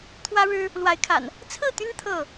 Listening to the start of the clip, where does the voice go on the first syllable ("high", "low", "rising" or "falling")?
high